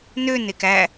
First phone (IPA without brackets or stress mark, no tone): n